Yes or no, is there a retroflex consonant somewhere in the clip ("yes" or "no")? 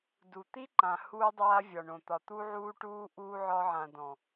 yes